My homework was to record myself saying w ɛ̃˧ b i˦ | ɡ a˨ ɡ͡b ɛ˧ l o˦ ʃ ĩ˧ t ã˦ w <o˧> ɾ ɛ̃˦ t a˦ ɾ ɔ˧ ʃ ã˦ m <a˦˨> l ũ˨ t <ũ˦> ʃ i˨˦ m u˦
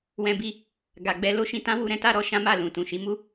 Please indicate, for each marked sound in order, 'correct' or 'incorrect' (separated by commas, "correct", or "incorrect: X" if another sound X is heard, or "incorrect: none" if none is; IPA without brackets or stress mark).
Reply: incorrect: u˧, correct, incorrect: ũ˨